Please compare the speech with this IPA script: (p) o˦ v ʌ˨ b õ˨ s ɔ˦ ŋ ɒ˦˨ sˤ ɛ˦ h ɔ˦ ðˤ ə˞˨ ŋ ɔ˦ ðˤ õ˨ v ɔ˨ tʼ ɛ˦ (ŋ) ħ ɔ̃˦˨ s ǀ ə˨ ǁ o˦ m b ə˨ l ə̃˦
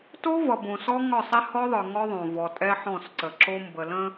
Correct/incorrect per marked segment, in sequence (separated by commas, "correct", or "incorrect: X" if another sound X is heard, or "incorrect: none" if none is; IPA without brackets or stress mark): incorrect: t, incorrect: none